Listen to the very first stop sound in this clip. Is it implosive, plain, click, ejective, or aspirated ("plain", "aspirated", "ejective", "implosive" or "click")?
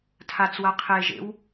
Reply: aspirated